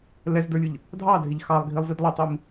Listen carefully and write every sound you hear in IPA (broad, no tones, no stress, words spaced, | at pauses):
lɛzdə˞lʲʊʎ | dʱɑdʱɪʎ xɑlˠɡʱilˠzid lˠətˤim